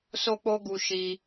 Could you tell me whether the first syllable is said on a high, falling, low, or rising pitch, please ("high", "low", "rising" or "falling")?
high